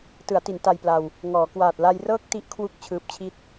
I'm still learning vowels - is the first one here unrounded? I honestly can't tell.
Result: yes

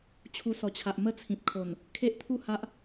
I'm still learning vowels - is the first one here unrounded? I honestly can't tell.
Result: no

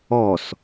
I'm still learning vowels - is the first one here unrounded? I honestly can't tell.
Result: no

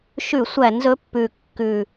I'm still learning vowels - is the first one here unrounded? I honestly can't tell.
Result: no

